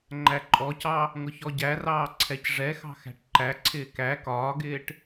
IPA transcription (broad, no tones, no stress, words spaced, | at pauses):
ŋ͡ǃæǃʼɔcɑ | ŋʊçɔɟærɑː ǀʰɛcʐɛxɑ̤ xæ̤ʈǃæǀʰɪː kæ kɒːɡɪːʈ